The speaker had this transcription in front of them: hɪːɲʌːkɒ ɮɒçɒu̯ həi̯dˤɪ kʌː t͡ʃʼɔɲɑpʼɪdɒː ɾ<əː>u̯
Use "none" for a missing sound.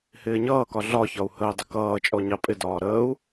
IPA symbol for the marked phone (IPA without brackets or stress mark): əː